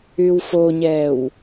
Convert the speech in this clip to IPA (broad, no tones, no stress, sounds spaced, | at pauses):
y w f o ɲ ɛː w